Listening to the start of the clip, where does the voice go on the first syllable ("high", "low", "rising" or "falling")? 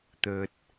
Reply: low